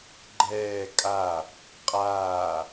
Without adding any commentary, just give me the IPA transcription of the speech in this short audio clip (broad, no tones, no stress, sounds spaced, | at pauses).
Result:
ɡ͡ǃ ɛː kʼ a | qʼ aː